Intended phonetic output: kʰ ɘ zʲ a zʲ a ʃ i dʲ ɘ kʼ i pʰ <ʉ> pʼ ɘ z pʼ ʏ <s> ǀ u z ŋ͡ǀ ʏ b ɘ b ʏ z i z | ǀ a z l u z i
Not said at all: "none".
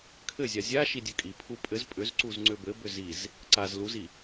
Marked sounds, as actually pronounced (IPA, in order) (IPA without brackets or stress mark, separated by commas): u, z